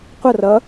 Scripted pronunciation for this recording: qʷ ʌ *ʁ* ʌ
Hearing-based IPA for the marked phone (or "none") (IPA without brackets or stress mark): r